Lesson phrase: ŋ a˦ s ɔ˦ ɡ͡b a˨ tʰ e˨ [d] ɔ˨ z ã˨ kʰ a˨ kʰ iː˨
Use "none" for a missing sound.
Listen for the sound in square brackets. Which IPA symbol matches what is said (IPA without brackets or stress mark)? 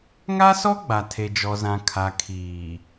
d͡ʒ